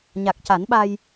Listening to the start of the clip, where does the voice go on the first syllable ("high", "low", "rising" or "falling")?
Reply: low